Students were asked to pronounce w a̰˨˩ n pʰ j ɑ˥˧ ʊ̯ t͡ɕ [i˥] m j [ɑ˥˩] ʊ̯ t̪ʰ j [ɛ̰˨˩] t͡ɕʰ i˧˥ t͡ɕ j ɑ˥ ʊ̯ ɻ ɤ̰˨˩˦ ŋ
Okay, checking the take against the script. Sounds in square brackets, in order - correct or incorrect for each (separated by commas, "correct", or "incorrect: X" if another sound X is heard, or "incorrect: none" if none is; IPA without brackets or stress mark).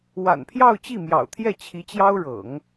incorrect: i˥˩, incorrect: ɑ̰˨˩, incorrect: ɛ˥˩